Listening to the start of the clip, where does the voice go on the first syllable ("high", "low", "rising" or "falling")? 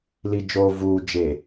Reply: low